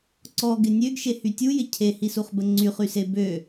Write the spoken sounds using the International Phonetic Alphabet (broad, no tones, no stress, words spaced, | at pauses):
ǀɔɡɪ nʲøɡʃehy tʲujɪ cʰehisuχbə ŋ͡ǀyχyse bø